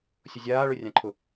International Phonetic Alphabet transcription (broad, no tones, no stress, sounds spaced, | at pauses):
sʲ ʊ zʲ aː ɭ ɵ rʲ ã ǃʰ ʊ